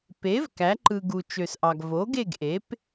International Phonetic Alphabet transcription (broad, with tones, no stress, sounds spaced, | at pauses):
p e˩˥ v k æ˩˥ ǃ ɯ˨ ɡ u˨ t͡ʃ ø˨ s ʔ ɑ˨ ɡ v o˩˥ ɡ e˦˨ ɡ ʔ e˩˥ p